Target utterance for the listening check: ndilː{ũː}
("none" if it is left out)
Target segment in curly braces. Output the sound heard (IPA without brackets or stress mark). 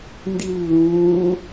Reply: ũː